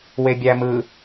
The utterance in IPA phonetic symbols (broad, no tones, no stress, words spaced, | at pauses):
webʲæmɯ